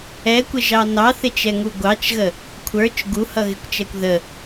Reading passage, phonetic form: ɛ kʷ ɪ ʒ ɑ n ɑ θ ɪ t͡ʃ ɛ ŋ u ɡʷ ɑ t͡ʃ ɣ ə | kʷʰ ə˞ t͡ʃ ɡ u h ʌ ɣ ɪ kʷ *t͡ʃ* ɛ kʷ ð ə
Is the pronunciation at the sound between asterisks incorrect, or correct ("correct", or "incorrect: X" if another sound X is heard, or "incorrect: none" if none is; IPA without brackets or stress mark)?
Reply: correct